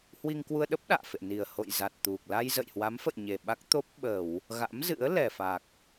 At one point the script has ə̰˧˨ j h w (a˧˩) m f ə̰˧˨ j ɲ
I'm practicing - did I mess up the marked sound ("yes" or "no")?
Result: yes